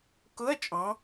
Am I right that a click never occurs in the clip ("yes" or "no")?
yes